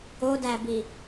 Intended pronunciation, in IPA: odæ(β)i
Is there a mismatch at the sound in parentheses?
yes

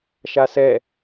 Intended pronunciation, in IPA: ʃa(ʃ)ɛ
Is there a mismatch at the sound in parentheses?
yes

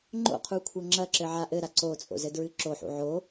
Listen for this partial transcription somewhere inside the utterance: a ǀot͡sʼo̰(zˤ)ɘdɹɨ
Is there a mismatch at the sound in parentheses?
yes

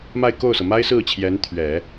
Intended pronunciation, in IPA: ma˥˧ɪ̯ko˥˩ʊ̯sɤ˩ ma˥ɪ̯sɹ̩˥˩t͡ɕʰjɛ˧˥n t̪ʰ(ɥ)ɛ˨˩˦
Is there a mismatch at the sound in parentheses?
no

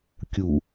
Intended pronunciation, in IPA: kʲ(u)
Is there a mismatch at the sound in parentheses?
no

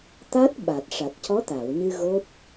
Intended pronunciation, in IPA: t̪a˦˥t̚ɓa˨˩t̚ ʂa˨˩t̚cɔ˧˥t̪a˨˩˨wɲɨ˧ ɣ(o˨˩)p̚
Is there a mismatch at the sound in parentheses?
yes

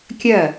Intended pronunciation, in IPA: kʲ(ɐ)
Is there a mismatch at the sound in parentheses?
no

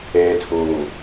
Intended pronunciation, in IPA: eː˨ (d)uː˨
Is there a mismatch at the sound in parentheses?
yes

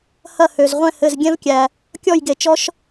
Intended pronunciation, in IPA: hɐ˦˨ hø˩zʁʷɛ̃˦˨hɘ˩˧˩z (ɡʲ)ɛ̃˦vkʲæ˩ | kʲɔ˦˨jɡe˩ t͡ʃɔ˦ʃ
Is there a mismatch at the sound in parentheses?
no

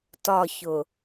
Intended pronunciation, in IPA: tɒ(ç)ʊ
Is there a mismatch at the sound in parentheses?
no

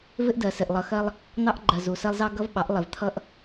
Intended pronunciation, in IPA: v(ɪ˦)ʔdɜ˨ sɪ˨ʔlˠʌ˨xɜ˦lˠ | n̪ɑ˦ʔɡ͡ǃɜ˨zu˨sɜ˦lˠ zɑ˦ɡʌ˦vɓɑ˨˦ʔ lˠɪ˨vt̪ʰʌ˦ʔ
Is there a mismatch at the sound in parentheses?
no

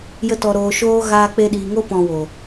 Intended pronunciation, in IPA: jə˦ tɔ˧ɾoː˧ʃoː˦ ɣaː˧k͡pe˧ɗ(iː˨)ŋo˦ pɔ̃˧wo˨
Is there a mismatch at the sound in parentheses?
no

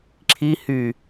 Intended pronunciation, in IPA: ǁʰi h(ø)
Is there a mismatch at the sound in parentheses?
yes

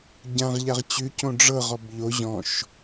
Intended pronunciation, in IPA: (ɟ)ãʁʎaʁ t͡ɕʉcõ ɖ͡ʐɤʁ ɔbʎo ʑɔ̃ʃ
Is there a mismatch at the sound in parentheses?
no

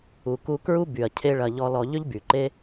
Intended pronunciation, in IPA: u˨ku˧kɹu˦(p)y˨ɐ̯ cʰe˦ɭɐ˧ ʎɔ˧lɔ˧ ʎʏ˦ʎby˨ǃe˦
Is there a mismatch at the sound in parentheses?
yes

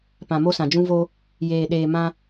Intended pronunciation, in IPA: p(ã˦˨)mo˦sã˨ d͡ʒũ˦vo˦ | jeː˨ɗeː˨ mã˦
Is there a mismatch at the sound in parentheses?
yes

